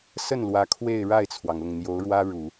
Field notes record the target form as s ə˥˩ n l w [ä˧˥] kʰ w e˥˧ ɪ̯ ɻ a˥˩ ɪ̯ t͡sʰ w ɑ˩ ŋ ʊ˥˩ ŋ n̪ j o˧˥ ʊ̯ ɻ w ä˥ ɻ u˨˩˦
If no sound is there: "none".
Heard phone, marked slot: ä˧˥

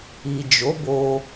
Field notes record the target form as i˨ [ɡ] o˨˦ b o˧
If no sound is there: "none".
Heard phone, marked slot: d͡ʒ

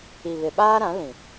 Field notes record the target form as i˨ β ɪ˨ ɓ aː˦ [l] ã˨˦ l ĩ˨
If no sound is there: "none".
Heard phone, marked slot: ɾ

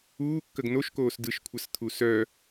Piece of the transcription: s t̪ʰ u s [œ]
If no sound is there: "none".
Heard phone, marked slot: œ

